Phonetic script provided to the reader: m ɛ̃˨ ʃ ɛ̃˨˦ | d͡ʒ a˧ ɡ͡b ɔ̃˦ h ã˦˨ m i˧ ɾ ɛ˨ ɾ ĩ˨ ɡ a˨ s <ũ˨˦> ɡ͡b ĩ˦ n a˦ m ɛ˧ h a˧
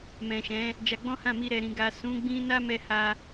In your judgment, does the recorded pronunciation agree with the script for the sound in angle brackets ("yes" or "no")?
yes